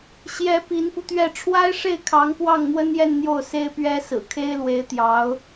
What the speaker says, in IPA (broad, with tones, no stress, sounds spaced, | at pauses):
ɕ j ɛ˧˥ p i˧˥ n p u˧ t̪ ɥ ɛ˥˩ ʈ͡ʂʰ w a˥ ɪ̯ ʂ e˥˩ ɪ̯ kʰ ɑ˧˥ ŋ p w ɑ˥˩ ŋ n̪ w ə˥ n j ɛ˥˧ n n̪ j o˥˩ ʊ̯ s e˥ ɪ̯ p ɥ ɛ˥ s ɹ̩˨˩ kʰ e˥ ɪ̯ l w e˧˥ ɪ̯ t̪ j ɑ˧˥ ʊ̯